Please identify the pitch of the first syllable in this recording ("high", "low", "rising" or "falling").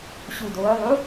low